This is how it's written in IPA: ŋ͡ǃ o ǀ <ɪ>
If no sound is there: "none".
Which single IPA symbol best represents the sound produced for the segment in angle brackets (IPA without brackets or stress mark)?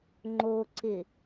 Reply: ɪ